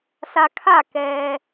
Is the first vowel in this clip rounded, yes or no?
no